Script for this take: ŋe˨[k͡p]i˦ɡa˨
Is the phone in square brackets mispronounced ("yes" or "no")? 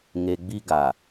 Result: yes